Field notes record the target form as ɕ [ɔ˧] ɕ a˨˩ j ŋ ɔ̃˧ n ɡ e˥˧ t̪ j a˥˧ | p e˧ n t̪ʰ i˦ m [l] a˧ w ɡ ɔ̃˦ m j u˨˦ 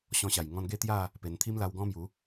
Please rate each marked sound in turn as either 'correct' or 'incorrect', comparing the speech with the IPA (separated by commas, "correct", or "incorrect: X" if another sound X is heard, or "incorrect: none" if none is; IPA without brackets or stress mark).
incorrect: ɔ̃˧, correct